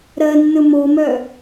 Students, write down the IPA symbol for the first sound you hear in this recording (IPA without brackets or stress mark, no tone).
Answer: ɾ